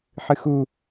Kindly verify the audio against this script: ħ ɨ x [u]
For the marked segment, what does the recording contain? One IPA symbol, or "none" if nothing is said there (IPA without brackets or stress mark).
u